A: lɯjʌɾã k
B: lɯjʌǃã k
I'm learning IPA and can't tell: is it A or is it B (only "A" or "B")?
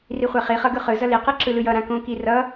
A